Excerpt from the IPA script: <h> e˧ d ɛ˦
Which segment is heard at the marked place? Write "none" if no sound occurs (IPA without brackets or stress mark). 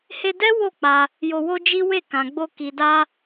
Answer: h